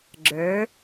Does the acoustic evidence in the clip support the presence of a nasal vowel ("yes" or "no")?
no